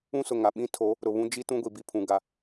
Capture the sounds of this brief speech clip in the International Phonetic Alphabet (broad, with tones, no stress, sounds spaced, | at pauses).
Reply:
ũ˦ s ʊ˨ ŋ a˨ ɓ ĩ˦ tʰ o˨˦ | ɾ ʊ˨ β ũ˦ d͡ʒ i˦ t ũ˦ ɡʷ i˨ b i˦ pʰ ũ˨ ɡ a˨